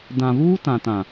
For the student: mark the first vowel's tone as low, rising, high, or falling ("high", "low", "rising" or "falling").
low